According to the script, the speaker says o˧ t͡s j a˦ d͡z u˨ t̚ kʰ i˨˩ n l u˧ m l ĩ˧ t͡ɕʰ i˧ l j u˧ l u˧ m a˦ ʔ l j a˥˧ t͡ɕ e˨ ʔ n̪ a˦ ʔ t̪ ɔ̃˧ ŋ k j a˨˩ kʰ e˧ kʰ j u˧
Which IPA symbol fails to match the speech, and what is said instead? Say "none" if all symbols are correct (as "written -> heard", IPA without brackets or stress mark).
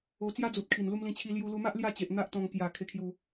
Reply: none